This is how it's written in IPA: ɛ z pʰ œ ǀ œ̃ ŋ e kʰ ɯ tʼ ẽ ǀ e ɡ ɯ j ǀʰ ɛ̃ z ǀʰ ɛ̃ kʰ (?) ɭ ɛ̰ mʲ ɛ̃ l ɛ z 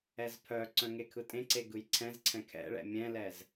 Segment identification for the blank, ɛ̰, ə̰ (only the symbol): ɛ̰